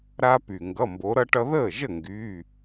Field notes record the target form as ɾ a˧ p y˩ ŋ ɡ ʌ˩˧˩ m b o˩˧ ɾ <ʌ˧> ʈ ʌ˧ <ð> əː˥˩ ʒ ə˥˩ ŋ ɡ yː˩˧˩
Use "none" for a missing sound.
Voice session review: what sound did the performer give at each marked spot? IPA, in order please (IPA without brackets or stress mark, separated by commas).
ʌ˧, ð